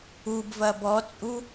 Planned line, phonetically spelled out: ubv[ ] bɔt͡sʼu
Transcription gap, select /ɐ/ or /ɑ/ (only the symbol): ɐ